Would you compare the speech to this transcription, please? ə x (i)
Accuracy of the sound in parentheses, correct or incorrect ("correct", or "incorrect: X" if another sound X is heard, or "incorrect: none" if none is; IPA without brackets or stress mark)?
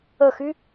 incorrect: y